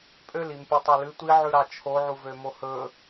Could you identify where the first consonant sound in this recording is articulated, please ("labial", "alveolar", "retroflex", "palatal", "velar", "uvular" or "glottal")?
labial